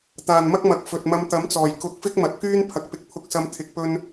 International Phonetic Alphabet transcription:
t̪ aː˨˩ n m ɐ˥ k̚ m ɐ˨ k̚ f ɵ˨ t̚ m ɐ˧ m t̪ ɐ˨˥ m t͡s ɔː˨˩ j k ʊ˨˥ k̚ f ɪ˥ k̚ m ɐ˨ t̚ k yː˥ n pʰ ɐ˨ k̚ p ɪ˨˥ k̚ pʰ ʊ˧ k̚ s ɐ˧ m t̪ʰ ɪ˧ k̚ p ɵ˥ n

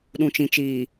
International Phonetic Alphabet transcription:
ɗ ũ˨ t͡ʃ ĩ˨ t͡ʃ iː˨

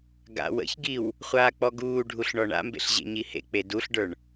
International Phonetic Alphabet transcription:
ɡ a̰ w ə̰ ç ɡ i w | χʷ aː k͡p ɔ ɡ uː ɖʱ u ɬ ɳ ɔ ɳ a̰ m b ḛ ɬ ʑ ḛ ɲ i h ḛ k͡p e d u ɬ ɖ ə˞ ɳ

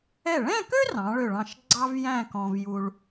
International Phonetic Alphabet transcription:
ɛ˧˩ ɭ ɛ̃˥˧ k ø˥ r ɑ̃˩˧ ɭ ø˧˩ ɭ ɑ̃˧˩ ʃ ɡ͡ǀ ɑ˥ v j æ̃˥˧ k ɔ̃˧ v j u˧ ɭ

